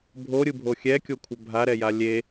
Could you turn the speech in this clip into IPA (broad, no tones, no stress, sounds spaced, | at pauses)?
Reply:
bʱ o ɾʲ ɯ bʱ o xʲ ɛ kʲ o kʷʰ ə bʱ a ɾ ɛ j a lʲ e